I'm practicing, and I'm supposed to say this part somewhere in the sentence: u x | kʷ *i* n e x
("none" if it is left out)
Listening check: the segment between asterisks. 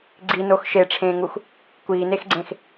iː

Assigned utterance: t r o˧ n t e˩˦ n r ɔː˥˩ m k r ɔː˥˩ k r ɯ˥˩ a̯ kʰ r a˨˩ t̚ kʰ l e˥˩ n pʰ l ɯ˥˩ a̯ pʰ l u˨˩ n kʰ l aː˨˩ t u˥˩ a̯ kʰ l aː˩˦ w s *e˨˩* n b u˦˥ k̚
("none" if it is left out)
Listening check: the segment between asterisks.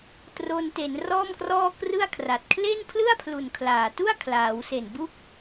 e˨˩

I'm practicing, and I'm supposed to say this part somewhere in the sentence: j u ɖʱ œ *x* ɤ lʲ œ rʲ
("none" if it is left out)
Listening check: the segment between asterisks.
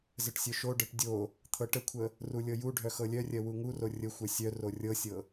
x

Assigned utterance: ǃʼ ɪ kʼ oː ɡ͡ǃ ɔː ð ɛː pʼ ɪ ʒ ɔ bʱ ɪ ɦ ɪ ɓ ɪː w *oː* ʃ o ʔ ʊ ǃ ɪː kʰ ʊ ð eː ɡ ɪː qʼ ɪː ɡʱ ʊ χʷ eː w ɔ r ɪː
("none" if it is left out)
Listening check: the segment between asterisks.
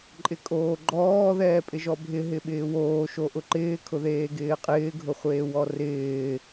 oː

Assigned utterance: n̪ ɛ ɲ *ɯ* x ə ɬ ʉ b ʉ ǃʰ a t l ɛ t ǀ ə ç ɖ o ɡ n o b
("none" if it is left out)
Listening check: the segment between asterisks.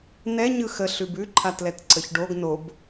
ɯ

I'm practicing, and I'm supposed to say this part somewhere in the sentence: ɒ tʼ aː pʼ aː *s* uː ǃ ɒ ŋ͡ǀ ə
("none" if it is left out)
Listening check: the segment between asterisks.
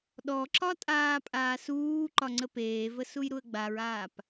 s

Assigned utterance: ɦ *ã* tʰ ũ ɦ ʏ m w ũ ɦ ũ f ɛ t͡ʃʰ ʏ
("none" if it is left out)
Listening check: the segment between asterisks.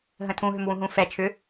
ə̃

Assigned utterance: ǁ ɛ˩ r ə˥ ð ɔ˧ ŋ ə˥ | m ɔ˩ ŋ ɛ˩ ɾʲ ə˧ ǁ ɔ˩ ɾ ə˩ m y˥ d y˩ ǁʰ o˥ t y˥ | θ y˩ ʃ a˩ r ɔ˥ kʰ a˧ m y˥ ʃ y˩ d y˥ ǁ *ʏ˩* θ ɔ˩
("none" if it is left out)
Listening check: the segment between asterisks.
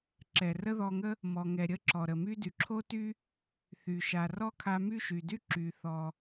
y˩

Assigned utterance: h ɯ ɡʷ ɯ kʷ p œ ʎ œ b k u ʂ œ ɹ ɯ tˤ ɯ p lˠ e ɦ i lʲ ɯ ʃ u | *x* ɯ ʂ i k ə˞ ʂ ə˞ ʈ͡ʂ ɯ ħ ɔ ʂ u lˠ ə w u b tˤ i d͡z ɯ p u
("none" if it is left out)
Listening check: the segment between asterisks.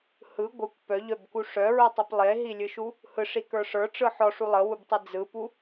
h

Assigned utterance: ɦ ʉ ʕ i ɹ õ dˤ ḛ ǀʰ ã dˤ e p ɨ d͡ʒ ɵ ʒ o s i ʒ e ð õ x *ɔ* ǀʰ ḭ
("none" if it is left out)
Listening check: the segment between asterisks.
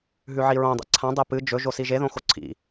o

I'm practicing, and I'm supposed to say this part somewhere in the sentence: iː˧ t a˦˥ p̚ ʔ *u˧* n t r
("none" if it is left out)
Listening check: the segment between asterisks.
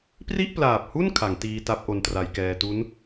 o˧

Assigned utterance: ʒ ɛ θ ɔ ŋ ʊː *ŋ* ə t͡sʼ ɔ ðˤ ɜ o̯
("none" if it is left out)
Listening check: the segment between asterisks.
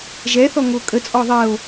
kʼ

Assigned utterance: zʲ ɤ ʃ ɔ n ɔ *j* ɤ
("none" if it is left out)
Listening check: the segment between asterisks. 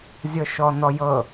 j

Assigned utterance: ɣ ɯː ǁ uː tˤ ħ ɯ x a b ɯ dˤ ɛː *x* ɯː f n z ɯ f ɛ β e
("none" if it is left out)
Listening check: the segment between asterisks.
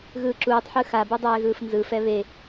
ɣ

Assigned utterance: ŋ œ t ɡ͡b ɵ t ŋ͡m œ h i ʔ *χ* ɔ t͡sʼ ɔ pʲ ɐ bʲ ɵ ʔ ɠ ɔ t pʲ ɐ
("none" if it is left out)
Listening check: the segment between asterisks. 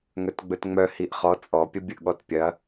χ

